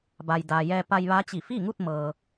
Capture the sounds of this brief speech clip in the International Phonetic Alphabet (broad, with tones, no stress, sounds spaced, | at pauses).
b a˩ j d aː˩ j ɛː˧ p a˧ j ʋ a˧˥ t͡ɕ i˧˩ f i˥˨ ŋ u˥˨ t̚ m ɤː˩